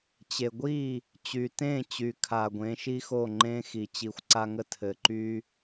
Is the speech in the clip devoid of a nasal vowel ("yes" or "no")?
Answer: no